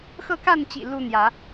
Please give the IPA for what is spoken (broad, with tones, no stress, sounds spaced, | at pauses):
x ɤ˥˨ k a˥˨ n t͡ɕ ḭ˨˩ l u˦ n̪ j ä˨˦